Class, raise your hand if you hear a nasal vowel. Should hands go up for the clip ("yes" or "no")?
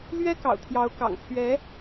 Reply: no